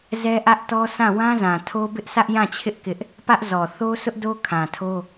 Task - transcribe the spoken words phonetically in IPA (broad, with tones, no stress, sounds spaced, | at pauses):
z ɛ˦ ʔ ä˦ ʔ t ɔ˦ sʰ ã˦˨ w ã˦ z ã˨ tʰ o˦ b ɪ˦ ʔ sʰ ä˦ ʔ j ã˦˨ t͡ɕʰ ɪ˦ ʔ k ɪ˦ ʔ | p ä˦ ʔ z ɔ˨ θ o˦ sʰ ʊ˦ ʔ d o˦ kʰ ã˨ tʰ o˦